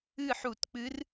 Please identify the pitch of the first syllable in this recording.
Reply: falling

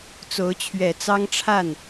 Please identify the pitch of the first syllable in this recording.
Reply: rising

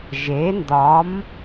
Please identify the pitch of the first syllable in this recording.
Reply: rising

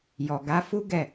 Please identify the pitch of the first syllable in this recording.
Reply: low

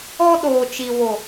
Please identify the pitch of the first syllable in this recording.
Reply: high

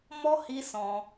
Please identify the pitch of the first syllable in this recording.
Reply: high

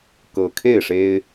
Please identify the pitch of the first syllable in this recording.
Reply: low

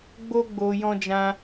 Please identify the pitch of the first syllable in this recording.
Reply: high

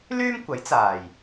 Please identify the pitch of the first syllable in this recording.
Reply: high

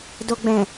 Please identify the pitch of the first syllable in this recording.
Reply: low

